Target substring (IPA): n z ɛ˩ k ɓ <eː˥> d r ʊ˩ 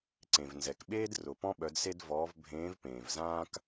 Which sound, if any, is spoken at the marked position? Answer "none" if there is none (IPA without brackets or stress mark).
eː˥